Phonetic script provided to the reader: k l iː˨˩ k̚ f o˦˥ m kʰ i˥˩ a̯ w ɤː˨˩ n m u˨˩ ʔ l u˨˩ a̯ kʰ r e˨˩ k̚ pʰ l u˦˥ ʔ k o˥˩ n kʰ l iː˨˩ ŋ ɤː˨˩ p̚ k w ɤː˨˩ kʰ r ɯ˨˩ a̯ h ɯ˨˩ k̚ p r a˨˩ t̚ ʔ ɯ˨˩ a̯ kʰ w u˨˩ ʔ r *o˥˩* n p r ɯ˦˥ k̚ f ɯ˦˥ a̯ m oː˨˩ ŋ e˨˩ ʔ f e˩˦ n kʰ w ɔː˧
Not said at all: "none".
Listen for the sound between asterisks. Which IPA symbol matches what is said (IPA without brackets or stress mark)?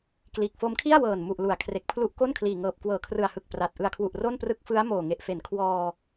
o˥˩